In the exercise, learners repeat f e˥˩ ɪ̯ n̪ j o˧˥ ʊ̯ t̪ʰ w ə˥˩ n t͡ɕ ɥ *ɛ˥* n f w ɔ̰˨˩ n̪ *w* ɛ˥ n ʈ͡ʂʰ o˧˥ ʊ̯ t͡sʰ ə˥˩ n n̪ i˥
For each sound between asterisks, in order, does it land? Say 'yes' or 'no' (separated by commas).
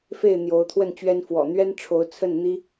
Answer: yes, no